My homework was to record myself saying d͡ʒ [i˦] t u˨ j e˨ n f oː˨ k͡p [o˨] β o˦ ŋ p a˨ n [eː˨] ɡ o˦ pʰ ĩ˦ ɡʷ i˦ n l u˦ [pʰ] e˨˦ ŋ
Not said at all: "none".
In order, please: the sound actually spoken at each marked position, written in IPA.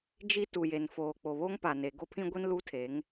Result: i˦, o˨, e˨, tʰ

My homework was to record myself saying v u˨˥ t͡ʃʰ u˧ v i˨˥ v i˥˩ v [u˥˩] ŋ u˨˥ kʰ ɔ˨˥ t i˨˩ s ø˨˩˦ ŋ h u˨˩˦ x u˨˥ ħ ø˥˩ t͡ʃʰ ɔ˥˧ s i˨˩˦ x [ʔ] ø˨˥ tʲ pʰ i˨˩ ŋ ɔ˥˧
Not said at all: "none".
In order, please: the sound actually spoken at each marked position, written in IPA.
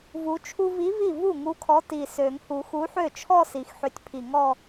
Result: u˥˩, ħ

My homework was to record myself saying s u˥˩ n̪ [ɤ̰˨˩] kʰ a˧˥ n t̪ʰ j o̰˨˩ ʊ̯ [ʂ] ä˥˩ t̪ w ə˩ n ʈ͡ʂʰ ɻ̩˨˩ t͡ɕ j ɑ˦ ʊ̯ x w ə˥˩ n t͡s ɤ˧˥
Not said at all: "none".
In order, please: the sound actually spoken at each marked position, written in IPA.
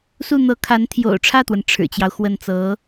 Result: ɤ˧˥, ʈ͡ʂʰ

